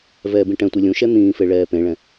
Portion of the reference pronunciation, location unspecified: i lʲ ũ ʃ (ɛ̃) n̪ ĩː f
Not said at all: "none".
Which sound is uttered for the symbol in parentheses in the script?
ɛ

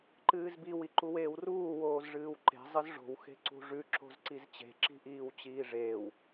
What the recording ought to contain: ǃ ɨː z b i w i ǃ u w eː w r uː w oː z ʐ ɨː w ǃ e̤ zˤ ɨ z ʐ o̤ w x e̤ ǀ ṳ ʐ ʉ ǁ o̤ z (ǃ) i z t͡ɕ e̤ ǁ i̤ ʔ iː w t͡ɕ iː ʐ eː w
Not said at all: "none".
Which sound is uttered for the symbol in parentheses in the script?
ǀ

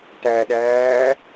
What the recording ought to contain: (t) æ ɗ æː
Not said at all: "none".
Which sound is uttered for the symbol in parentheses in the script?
t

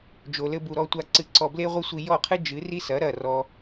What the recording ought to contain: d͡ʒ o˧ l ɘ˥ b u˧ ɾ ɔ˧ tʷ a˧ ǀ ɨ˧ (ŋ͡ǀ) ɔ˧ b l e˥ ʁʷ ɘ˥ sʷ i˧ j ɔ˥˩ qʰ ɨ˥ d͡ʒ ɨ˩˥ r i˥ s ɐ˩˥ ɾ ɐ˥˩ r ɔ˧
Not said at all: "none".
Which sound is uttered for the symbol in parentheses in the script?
ǀ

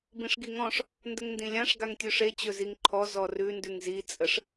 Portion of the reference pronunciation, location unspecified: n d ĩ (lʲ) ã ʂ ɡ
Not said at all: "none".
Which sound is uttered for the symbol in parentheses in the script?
lʲ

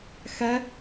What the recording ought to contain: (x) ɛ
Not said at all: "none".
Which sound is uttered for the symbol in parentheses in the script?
x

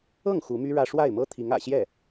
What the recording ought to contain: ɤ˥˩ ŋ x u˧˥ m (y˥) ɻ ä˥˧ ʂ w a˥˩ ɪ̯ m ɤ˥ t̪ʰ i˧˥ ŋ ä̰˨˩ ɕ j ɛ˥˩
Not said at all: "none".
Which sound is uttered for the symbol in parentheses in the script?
y˥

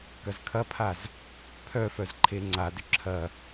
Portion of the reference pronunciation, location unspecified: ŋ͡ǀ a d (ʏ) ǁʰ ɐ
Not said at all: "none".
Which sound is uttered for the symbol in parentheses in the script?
ʏ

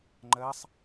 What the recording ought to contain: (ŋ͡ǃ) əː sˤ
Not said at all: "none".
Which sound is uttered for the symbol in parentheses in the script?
ŋ͡ǃ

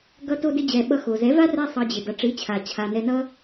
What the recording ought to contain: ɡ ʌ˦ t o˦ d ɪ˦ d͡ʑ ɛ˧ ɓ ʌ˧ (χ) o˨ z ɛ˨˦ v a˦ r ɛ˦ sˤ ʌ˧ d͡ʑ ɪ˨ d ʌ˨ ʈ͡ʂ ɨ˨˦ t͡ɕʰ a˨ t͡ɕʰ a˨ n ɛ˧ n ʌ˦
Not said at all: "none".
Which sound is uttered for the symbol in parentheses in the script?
x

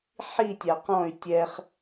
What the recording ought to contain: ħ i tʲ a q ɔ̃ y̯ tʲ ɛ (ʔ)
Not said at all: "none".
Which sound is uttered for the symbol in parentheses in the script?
χ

